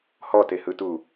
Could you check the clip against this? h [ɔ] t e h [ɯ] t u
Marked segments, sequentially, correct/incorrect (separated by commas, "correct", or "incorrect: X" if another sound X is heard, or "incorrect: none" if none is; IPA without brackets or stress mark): correct, correct